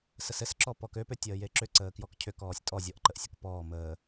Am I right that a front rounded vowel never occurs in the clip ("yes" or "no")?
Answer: no